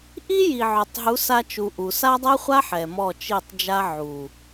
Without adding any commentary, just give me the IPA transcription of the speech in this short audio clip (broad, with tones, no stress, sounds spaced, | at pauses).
ʔ i˦ j i˨ ʕ œ˨ tˤ ɦ u˨˦ s a˧ t͡ʃ u˨ ʔ u˨ s a˦ dˤ ɛ˦ χʷ a˦ ħ ɛ˨ m ɔ˦˨ t͡ʃ i˦˨ tˤ d͡ʒ a˦ ʕ u˨